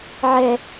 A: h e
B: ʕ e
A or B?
B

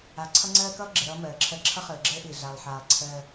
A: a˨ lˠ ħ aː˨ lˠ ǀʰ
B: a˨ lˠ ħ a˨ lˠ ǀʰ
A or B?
A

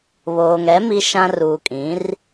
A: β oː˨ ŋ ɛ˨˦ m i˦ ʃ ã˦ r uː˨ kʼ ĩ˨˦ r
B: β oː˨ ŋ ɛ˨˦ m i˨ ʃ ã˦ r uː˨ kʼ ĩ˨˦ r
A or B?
A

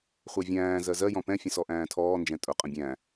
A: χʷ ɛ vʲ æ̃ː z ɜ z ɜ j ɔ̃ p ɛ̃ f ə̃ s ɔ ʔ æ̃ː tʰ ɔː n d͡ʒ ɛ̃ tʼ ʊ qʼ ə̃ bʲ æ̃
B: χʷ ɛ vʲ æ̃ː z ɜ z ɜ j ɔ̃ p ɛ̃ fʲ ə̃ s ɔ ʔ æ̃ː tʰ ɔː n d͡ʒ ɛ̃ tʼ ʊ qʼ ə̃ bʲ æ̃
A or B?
B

